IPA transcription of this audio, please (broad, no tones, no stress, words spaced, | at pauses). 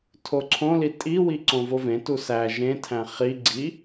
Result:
tʰoǀʰõli tʼiwi ǀõvovẽtu sæ ʒẽtʰæ̃ χi ɡ͡ǀi